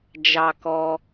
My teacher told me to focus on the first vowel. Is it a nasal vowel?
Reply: no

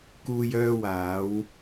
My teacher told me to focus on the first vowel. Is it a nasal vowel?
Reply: no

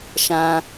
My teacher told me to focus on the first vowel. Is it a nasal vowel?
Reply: yes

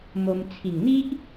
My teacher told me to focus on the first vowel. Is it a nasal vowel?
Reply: no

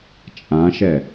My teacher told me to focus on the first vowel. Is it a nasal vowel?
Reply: yes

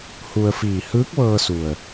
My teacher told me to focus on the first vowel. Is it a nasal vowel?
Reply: no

